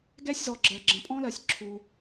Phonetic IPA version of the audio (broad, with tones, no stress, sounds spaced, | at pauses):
ɡ ɛ˥ sʲ z ɔ˩ ɡ͡ǁ ɜ˩ ɡ͡ǁ ə̃˩ pʼ ɔ̃˥ l ɜ˩ sʲ ǁʰ u˩